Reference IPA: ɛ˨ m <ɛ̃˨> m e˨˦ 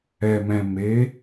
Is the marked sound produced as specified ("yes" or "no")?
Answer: yes